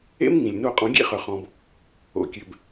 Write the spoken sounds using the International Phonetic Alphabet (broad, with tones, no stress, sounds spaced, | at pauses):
ḛ˦ m ŋ ĩ˩ lʲ n o˧˩ qʼ ɔ̃˨˩˦ ɡʲ ḛ˦ χ œ˩ χ ɔ̃˩ b | o̰˩ kʲ ø˩ b